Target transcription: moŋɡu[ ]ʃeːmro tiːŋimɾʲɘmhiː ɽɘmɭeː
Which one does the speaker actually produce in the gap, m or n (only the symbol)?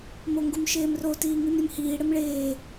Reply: m